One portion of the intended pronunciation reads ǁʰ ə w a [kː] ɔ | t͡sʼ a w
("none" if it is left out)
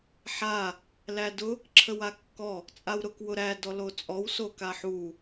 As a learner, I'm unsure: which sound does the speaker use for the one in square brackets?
kː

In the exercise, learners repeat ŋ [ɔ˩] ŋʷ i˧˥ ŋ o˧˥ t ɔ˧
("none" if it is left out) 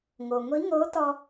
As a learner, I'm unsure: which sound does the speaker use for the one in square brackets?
o˩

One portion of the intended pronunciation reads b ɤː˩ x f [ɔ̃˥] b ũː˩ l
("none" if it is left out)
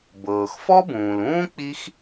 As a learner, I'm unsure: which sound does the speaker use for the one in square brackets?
ɔ˥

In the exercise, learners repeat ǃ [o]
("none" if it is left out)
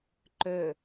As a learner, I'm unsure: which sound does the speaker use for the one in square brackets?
ɵ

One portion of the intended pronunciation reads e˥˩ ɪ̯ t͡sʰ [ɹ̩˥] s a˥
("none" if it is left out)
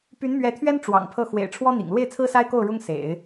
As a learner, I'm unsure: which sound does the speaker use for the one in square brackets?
ɹ̩˥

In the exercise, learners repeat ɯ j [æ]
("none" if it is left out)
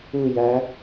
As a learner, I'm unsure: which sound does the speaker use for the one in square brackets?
æ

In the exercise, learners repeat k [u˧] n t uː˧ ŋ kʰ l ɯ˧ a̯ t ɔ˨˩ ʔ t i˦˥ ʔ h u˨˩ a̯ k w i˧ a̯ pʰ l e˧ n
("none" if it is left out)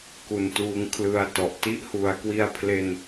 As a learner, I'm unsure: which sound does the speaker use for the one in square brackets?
u˧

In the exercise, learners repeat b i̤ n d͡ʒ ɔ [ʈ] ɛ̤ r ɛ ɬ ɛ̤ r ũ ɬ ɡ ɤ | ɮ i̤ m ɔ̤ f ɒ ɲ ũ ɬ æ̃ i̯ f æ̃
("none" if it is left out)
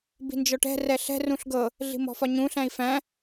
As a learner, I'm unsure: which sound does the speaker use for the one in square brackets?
ʈ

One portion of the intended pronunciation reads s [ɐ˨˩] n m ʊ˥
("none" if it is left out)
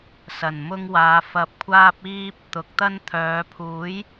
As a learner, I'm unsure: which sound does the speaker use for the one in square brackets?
ɐ˨˩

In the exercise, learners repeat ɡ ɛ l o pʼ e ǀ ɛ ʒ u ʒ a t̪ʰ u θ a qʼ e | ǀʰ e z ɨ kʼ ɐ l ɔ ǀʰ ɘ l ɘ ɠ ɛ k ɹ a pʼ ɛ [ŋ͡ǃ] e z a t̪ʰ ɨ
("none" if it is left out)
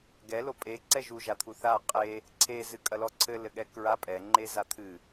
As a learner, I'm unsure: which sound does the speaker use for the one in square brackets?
ŋ͡ǃ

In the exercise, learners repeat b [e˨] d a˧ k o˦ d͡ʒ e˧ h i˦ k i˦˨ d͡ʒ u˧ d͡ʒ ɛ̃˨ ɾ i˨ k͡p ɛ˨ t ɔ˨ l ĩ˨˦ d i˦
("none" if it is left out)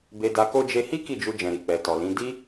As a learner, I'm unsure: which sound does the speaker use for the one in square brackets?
e˧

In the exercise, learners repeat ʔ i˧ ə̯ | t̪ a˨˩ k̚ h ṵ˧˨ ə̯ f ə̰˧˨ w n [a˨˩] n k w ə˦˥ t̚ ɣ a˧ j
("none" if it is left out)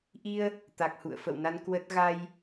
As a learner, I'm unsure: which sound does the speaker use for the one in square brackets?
a˧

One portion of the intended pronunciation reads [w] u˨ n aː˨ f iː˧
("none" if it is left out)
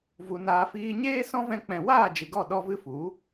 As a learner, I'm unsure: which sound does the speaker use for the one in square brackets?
v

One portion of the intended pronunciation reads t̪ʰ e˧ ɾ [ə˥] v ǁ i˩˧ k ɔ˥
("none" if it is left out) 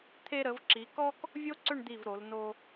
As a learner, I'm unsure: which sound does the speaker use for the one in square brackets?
ə˩˧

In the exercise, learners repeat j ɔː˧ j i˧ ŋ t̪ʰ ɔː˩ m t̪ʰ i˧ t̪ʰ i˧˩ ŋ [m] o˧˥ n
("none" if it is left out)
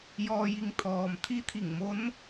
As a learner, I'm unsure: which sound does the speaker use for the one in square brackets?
m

